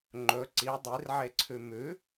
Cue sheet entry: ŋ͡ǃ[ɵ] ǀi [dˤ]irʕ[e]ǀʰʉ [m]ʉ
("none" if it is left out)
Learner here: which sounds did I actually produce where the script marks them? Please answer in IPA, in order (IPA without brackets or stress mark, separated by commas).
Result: ɵ, dˤ, e, m